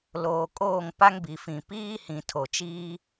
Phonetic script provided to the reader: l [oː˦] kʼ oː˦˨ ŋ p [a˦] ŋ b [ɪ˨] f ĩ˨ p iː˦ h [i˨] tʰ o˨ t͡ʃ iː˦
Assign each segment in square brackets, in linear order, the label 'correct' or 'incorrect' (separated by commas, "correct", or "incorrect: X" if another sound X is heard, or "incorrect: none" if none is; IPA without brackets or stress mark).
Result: incorrect: oː˨, correct, incorrect: i˨, incorrect: ĩ˨